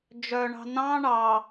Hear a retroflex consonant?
yes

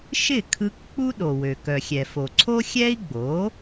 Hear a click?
yes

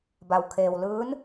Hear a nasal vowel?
no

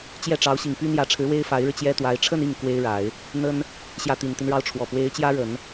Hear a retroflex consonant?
yes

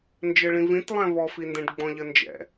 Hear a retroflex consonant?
yes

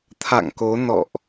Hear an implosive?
no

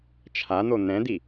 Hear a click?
no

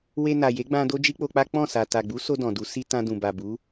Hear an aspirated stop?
no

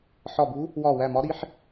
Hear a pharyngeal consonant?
yes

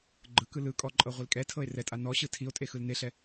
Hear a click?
yes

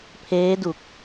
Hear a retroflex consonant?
no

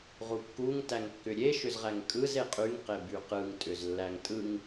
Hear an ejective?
yes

